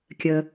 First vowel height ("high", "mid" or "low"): mid